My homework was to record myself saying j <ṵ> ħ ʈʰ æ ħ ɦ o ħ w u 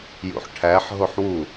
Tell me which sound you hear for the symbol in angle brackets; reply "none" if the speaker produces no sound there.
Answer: ṵ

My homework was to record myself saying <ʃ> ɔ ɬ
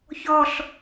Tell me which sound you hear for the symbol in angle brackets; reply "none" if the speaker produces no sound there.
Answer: ç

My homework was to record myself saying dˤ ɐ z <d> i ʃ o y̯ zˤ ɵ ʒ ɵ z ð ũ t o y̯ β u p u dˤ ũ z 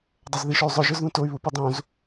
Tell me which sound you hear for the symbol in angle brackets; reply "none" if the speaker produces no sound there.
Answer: ð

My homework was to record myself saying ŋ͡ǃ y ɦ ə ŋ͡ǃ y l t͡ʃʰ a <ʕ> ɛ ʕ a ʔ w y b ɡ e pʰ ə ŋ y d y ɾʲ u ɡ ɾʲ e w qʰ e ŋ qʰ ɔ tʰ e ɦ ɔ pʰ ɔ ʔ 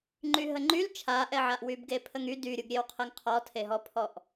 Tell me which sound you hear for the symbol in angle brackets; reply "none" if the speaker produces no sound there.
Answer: ʔ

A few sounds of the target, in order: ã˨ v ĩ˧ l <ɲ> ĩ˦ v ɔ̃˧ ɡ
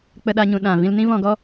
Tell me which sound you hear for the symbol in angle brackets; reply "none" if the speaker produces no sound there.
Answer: n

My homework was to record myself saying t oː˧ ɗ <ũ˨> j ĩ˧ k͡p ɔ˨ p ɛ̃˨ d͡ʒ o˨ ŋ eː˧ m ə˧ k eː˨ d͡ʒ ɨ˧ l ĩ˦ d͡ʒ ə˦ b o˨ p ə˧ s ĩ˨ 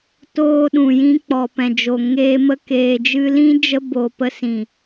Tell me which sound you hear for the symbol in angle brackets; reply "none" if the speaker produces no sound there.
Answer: ũ˨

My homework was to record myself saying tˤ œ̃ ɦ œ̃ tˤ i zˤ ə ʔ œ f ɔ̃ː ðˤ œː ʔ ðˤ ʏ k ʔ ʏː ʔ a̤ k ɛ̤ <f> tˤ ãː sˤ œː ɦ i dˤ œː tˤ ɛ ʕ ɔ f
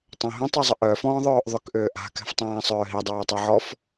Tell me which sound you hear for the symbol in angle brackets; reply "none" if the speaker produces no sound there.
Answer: f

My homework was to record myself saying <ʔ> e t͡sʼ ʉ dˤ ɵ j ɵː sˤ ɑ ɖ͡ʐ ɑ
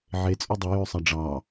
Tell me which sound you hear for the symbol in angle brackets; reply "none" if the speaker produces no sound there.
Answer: ʕ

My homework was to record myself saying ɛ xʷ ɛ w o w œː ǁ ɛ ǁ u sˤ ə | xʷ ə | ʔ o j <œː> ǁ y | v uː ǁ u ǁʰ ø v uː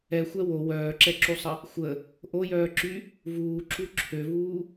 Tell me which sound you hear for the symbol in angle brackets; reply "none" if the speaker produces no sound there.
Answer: œː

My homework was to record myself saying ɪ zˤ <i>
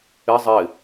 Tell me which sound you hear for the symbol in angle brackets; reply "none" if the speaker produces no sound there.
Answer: ɪ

